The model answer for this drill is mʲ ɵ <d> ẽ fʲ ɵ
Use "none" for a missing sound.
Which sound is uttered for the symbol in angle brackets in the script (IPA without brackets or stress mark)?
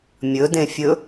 d